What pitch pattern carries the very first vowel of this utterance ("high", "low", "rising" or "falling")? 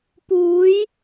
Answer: rising